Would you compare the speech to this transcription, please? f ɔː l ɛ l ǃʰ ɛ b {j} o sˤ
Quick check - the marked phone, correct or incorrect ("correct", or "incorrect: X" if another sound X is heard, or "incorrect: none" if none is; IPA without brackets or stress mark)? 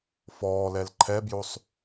correct